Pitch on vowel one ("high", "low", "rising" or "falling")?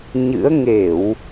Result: rising